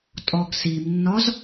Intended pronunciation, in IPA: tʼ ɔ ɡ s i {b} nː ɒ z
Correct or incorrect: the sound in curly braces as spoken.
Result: incorrect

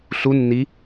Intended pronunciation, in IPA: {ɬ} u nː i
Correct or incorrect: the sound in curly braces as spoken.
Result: correct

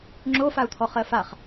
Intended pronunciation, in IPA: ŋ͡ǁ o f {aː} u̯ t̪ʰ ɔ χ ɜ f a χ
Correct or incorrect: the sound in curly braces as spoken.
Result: incorrect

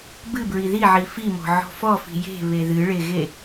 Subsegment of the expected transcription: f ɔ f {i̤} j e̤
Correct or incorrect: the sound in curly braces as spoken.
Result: correct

